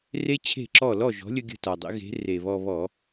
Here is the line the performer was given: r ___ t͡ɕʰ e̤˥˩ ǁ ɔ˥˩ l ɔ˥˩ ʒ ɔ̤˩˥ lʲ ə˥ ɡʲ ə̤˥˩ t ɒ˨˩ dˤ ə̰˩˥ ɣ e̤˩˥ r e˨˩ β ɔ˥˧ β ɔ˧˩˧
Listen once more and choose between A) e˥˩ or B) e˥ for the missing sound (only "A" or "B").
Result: B